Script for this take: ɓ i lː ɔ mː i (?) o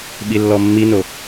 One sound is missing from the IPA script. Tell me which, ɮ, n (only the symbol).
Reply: n